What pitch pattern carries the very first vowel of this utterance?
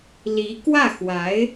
rising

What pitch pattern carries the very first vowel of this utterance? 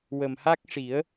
low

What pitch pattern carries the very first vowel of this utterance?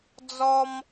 high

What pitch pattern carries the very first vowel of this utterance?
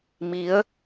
rising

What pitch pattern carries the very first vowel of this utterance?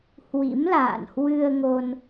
rising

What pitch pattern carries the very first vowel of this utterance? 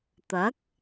rising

